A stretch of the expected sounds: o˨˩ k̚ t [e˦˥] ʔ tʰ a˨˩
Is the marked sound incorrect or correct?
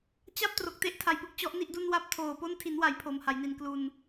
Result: correct